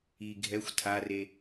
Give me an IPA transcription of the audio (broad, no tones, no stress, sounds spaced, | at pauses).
i ɡʱ ɛ xʷ tʰ a r e